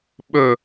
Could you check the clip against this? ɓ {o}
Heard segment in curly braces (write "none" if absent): ɵ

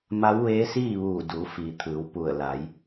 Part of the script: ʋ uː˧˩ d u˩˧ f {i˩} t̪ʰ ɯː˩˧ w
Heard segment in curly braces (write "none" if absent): i˩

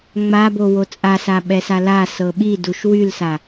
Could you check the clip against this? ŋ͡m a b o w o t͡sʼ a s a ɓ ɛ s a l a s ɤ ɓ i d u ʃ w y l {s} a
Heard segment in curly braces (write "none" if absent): s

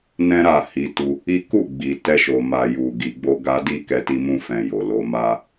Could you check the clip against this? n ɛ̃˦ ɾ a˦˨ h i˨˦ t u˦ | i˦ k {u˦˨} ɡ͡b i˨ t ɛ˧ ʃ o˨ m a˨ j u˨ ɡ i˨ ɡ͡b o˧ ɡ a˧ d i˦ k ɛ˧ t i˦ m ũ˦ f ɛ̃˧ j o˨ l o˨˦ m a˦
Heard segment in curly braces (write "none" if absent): u˦˨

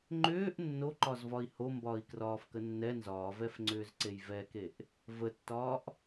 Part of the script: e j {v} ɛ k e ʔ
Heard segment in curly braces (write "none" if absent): v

